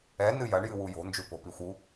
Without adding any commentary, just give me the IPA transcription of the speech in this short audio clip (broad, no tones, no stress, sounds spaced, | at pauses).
ɛ n ɨ j ɐ ɳ j ɨ w u j o̤ n d͡ʒ u p o̤ p i xʷ u